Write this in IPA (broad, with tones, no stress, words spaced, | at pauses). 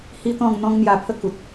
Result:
hi˦t̪ɔ̃˥˧ŋ n̪ɔ̃˦ŋn̪ja˧pʰə˦ ku˨t̚